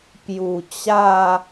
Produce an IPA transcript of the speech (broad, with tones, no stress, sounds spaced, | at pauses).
p j u˨˩ t͡ɕ a˥˧